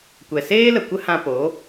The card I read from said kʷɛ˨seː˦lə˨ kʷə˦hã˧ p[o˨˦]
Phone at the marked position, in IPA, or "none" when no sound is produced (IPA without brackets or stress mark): o˨˦